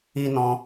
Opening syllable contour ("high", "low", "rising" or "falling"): high